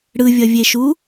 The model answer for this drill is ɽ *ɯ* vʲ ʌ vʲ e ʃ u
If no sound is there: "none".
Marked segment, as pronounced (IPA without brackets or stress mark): ɯ